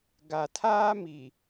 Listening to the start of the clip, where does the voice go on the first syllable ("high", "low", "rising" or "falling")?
low